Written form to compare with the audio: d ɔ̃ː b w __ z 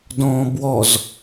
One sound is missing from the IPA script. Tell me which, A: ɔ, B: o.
A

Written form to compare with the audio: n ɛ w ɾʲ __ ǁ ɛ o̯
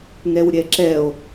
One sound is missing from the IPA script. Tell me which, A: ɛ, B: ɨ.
A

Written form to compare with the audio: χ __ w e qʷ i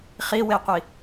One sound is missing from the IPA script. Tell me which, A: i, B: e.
A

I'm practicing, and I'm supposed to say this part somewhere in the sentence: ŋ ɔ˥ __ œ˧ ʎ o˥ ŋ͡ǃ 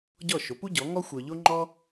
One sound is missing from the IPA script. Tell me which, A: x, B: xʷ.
B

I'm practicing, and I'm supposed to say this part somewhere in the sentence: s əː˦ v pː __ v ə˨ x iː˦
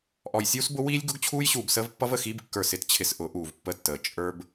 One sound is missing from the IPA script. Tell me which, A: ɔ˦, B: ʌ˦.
B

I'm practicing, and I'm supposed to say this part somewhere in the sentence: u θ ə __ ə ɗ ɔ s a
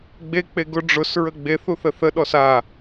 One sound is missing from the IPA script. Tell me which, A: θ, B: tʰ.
A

